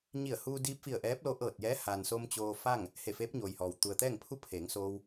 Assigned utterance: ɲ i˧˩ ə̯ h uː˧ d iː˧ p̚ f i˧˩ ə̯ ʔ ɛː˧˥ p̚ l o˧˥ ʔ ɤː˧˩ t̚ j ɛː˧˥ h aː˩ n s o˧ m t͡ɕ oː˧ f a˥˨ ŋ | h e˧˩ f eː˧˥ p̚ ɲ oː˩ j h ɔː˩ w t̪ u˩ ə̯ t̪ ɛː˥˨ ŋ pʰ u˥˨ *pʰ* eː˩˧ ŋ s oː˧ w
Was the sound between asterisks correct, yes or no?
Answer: yes